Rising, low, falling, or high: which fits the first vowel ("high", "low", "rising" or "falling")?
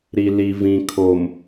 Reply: low